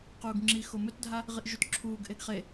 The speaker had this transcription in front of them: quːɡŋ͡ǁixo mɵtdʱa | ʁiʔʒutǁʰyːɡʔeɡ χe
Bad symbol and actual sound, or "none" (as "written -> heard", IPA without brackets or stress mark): yː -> uː